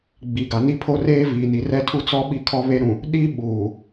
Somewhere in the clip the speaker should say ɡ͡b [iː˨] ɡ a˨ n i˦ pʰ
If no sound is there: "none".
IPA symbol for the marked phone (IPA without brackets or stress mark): i˨